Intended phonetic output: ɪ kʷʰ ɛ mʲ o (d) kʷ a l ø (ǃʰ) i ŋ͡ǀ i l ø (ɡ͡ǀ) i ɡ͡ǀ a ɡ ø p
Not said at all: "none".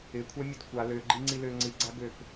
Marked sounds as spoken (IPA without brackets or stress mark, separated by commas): d, ɡ͡ǃ, ŋ͡ǀ